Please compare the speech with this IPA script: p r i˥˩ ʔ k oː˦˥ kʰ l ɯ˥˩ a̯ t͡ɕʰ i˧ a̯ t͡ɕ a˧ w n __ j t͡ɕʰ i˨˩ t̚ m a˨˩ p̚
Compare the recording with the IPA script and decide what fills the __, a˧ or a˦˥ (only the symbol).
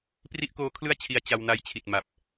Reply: a˧